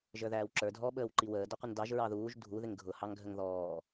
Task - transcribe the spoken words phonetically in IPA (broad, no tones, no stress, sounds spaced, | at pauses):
ʒ ə˞ ð æː w ǁ ə˞ dʱ ɔ ɓ əː w ǃ i w əː d ɔ qʷ ə n d ɑ ʒ ɹ ɑ ð uː ʒ dʱ u ð ɪ ŋ ɡʱ ʊ h ɑ ŋ ɡʱ ə ŋ ð ɔː